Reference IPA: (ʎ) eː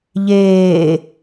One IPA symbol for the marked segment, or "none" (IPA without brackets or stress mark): ʎ